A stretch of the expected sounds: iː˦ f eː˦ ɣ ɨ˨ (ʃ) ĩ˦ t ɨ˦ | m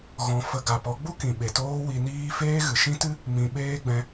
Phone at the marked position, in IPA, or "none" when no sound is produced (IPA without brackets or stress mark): ʃ